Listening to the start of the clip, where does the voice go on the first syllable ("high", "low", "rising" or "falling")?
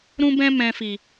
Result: high